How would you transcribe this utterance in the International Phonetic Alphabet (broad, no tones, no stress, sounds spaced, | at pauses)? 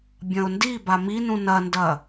bʲ ɐ̃ ʊ̯ n d i b a m i n ũ n ɐ n d ɐ